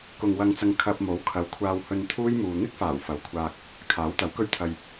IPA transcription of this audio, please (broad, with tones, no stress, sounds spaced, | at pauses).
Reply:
k ʊ˧ ŋ w ɐ˧ ŋ t͡s ɐ˧ ŋ kʰ ɐ˧ p̚ m o˨˥ w kʰ ɐ˨˥ w kʷʰ aː˧ w h ɵ˧ n t̪ʰ uː˥ j m uː˨ n̪ ɪ˥ k̚ f aː˨˩ w f ɐ˨˥ w kʷʰ aː˧ k̚ | kʰ aː˨˥ w t̪ ɐ˨˥ w k ɵ˥ ɥ t̪ʰ ɐ˧ j